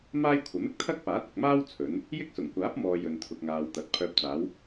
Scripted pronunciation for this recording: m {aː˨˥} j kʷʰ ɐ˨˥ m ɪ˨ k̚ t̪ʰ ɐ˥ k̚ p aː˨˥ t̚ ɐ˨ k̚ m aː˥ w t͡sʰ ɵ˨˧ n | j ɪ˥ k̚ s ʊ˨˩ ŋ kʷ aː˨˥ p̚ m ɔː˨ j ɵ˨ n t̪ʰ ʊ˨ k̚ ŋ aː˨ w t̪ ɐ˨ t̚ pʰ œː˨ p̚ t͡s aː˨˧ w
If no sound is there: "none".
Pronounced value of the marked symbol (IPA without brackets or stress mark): aː˥